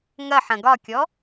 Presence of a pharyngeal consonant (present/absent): present